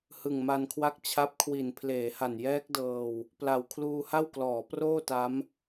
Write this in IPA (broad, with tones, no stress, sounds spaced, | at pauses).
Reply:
h ɯ˨˩ ŋ m a˧ n kʰ w a˦˥ k̚ t͡ɕʰ a˦˥ p̚ kʰ w i˨˩ n pʰ l eː˩˦ h a˨˩ n j ɛː˦˥ k̚ d ɤː˧ w | p l a˨˩ w kʰ l uː˧ h a˥˩ w k l ɔː˩˦ p r oː˥˩ t a˦˥ m